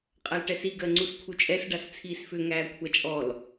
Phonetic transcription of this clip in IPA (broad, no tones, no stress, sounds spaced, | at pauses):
qʼ a l ʈ ɛ s i ɡ ɜ ŋ͡ǀ u s kʰ u t͡ʃʼ ɛ s ɖ a s t͡sʰ iː s f ʏ ŋ æː kʷʰ a t͡ʃʼ ɔ l